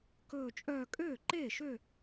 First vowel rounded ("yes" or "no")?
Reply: yes